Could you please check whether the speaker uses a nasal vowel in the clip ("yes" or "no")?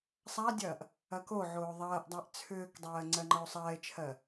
no